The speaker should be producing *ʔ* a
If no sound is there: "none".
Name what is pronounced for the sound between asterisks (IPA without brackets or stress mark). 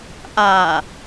ʔ